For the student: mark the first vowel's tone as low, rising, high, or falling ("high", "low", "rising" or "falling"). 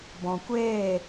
low